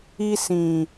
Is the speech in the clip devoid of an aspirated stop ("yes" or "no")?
yes